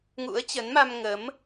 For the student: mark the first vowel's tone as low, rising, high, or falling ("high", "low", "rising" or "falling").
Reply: rising